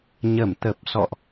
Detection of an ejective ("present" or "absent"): absent